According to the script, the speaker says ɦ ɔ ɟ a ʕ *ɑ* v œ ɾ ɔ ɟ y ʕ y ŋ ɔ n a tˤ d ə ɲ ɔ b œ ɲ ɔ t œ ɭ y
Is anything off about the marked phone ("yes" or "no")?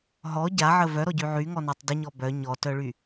yes